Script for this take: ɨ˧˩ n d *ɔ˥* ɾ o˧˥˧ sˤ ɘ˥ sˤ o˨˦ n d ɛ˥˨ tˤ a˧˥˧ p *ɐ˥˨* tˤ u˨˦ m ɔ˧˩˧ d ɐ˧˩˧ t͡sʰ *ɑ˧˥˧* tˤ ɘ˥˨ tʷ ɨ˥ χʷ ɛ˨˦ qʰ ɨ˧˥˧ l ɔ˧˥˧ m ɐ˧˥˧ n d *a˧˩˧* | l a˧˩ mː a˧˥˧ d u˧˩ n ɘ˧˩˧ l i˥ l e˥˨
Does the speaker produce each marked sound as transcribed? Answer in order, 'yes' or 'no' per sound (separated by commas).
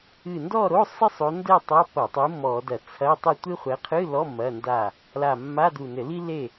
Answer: no, no, no, no